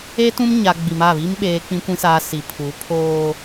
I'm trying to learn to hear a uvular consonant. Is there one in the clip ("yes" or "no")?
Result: no